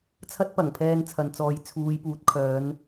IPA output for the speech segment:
t͡sʰ ɐ˥ t̚ p ɐ˨˩ ŋ pʰ ɛː˧ n t͡sʰ ɐ˨ n t͡s ɔː˨˧ j t͡sʰ uː˨˧ j p uː˨˥ t̚ kʰ œː˨˧ n

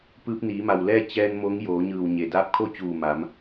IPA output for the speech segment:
p ɯː˧ p̚ n iː˩˧ m a˩ w l ɛː˥˨ t͡ɕ ɛː˧ n m o˧˥ ŋ j oː˩˧ ɲ ɯː˧˩ w ɲ e˩ d aː˧˥ p̚ kʰ o˥˨ t͡ɕ uː˧˩ m a˩˧ m

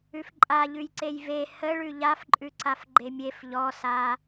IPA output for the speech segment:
ʉ f ǃʼ a ʎ ʉ j ǀ e j v e h ə ɭ ʉ ʎ a f ǃʼ ʉ ǀ a f ɡ͡ǃ e mʲ e f ʎ ɔ s a

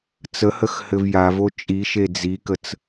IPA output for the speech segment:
t͡s ə h ə x h ɘ v j a v o t͡ʃʼ i ʃ e d͡z i k ə t͡s

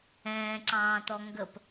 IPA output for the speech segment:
ɛ̃ː ǀ ɑ̃ː t̪ ɔ ŋ ɡ ə p

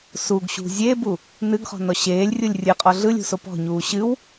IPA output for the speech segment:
s u ɡ ɕ ṳ zʲ e b u | n ɨ ɡ χ ɔ̤ n ɔ ɕ eː lʲ rʲ u lʲ rʲ ɨ qʼ ɔ ɮ ɯ lʲ ṳ s o p ɔ̤ ɲ uː ɕ ɨ w

